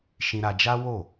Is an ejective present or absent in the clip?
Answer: absent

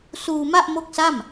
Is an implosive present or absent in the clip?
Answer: absent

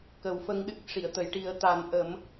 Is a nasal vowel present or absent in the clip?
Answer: absent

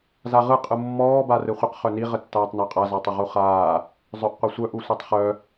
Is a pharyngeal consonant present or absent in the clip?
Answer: absent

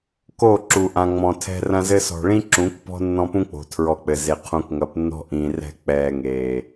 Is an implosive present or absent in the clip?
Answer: absent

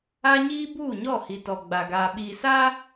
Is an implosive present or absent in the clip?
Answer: present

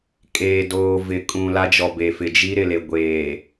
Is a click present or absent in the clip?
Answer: absent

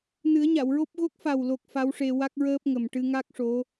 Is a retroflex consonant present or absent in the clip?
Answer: present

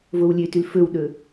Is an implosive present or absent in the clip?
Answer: present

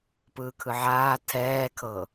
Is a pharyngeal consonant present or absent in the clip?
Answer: present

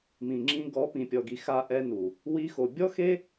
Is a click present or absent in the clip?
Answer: present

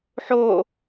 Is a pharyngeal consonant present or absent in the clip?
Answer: present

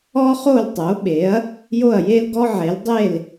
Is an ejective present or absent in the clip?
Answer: absent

